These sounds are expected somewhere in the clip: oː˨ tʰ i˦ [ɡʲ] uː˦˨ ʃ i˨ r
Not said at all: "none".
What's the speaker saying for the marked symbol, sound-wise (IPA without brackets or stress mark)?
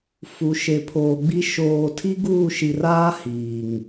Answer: ɡ